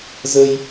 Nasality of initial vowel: oral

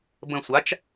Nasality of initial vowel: nasal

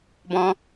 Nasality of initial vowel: nasal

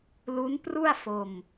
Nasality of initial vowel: oral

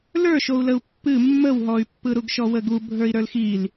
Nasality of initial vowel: oral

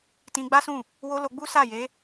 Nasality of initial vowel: nasal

